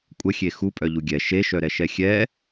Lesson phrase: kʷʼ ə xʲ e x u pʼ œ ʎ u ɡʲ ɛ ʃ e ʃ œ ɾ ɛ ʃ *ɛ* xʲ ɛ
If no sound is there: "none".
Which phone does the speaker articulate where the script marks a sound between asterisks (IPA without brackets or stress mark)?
ɛ